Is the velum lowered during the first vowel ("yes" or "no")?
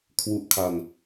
no